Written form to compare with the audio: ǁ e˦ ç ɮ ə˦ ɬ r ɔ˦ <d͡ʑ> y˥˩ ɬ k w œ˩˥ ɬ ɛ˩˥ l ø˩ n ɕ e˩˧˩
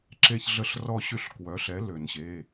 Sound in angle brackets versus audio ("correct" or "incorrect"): incorrect